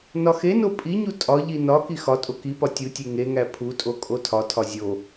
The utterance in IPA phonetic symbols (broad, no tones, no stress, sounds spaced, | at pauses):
n ɒ x e n o pʼ i ɲ u tʼ ɒ ʎ i n ɒ k i x ɒ tʼ o k i p ɒ tʲ u tʲ e ŋ e ŋ æ pʰ u tʼ o kʼ o tʰ ɒ tʰ ɒ zʲ o